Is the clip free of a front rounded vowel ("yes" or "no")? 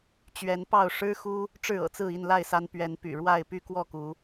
no